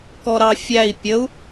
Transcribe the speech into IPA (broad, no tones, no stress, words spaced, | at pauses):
kɔɾɑfʲæi̯ pʲəu̯